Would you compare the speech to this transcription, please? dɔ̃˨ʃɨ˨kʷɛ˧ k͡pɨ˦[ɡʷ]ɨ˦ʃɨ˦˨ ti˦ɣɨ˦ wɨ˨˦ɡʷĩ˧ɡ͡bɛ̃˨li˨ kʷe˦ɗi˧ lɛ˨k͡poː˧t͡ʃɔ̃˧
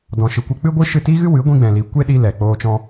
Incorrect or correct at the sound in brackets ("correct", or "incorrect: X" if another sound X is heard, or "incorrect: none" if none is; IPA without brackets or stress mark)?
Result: correct